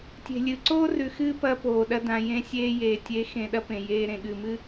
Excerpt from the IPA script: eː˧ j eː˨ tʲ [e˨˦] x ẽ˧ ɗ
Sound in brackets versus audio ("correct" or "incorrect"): correct